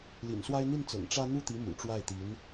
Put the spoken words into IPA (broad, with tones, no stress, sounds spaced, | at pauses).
l ḭ˨˩ n s w a˥ ɪ̯ n̪ i˥˩ n t͡s ɤ̰˨˩ ŋ ʈ͡ʂ ä˥ n̪ u˥˩ t̪ i˧˥ m ṵ˨˩ ʈ͡ʂ w a˥˩ ɪ̯ t̪ i˧˥ n